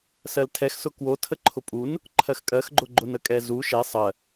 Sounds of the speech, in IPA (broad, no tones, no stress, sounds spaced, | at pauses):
s ɜ l tʰ ɛ x s ʊ k w o tʰ ə ǃʰ ʊ pʼ u n | ǃʰ ɜ x kʼ ɜ x ɡ͡ǃ ʊ ɡ͡ǃ ʊ n ə kʼ ɛ z u ʃ ɛ sˤ ɜ